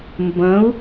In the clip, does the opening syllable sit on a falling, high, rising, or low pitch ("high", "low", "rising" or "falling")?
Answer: rising